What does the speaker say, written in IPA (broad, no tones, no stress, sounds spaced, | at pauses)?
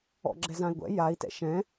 ɔ̰ ɡ͡ǁ ɛ z ã i̯ ɡʷ ɛ̰ j a i̯ t ɛ̰ ʃ ɛ̃